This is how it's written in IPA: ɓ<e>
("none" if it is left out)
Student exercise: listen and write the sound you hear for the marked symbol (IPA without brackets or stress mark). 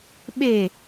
e